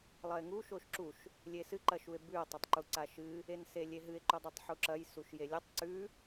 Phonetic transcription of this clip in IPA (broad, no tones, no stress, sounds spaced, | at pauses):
lˠ ɐ e̯ ŋ u ʃ o ʃ ǁ u ʃ | lʲ e s ɨ ǃ ɐ ʃ u e̯ b ʉ o̯ tˤ ɐ tˤ ǃ u ǀ a ʃ ɨ | e n s e lʲ e ɦ ɨ e̯ ǃ u dˤ ʉ tˤ ħ u ǁ ɐ j s u ʃ j e lʲ ʉ tˤ ǀ ʉ